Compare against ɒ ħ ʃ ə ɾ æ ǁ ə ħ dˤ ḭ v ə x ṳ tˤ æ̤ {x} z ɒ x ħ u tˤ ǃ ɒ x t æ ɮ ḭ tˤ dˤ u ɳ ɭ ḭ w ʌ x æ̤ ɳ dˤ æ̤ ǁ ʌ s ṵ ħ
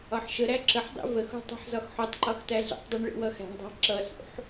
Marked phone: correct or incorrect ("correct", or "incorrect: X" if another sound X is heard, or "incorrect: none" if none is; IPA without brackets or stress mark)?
incorrect: ħ